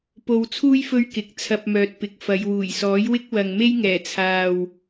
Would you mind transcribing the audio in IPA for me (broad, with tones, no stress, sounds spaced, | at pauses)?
p o˧ w t͡sʰ uː˥ j f ɵ˥ ɥ k ɪ˨˥ k̚ t͡sʰ ɐ˧ p̚ m œː˨ t̚ p ɪ˨ k̚ f ɐ˨˧ j w uː˨˩ j s ɔː˨˥ j w ɪ˥ k̚ w ɐ˨ ŋ m e˥ j ŋ ɛː˨˩ t͡sʰ aː˨ w